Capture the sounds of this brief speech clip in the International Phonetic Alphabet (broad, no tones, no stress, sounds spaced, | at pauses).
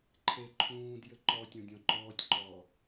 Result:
ǃʰ e ǃʰ ũː d j ɘ ǃ ɔ tʲ ɔ̃ dʲ ɔ̃ ǃ ɔː tʲ ǃ ɔː